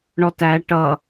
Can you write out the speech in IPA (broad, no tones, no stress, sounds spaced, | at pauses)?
ɳ ɔ t æ ʈ ʌ